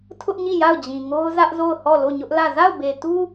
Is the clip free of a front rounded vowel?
yes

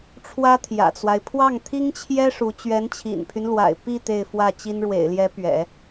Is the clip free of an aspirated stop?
no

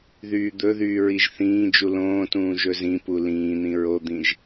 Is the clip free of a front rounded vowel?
no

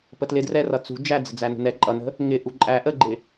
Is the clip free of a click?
no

